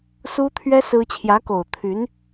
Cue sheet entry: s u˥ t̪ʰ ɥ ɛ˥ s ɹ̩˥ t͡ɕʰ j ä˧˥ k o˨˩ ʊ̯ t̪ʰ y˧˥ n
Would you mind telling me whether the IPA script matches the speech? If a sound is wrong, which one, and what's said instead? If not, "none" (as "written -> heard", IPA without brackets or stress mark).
none